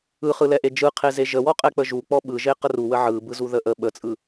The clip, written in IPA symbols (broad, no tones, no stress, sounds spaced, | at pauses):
ɯ χ ɯ l ɛ ʔ e d͡ʒ ɯ qʰ e z e ʒ ə w ɔ qʼ ɛ k͡p ə ʒ u k͡p ɔ ɓ ɯ ʒ e q ə r u w ə ʕ ɯ b ɯ z u ð ə ʔ ə ɓ ə t͡sʼ ɯ